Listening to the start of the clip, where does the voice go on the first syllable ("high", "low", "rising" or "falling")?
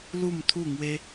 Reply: falling